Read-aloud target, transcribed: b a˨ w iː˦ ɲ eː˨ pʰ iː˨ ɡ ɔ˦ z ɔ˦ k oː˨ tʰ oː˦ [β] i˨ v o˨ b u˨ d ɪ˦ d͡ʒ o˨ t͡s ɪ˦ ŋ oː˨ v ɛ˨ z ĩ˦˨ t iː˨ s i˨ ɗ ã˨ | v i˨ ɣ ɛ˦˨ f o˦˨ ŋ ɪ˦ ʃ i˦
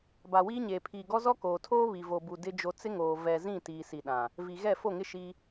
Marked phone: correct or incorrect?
correct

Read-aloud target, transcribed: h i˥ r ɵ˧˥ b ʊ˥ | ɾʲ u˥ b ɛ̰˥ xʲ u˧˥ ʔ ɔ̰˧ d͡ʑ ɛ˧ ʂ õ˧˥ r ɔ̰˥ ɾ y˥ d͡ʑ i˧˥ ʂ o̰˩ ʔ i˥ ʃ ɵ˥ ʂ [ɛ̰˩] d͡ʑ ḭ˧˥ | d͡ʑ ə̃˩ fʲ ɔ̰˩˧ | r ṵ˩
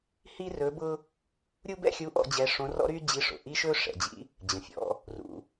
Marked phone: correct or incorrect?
correct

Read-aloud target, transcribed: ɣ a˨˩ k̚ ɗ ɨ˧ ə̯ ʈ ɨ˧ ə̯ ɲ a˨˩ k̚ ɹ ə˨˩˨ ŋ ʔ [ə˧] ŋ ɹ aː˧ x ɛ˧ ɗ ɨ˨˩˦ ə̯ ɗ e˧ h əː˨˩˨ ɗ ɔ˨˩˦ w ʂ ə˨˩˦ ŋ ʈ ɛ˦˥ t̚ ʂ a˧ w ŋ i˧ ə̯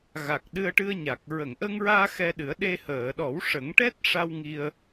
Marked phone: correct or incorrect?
correct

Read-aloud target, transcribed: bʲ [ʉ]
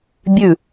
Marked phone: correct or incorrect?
correct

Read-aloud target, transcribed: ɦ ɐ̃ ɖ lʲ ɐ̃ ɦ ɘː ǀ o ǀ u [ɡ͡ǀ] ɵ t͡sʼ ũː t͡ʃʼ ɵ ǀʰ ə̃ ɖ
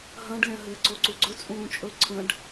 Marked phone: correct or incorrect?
correct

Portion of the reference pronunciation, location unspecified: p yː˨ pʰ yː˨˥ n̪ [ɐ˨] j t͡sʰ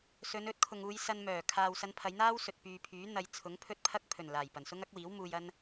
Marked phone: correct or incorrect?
incorrect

